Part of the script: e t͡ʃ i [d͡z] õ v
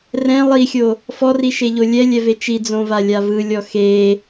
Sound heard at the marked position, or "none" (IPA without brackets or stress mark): d͡z